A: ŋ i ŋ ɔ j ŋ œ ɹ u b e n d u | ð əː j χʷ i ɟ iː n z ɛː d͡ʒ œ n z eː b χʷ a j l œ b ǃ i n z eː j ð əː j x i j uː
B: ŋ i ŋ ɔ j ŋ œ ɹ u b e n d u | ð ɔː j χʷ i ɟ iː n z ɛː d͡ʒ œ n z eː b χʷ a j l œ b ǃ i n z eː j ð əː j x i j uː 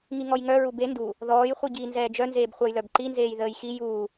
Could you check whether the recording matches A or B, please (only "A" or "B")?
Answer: B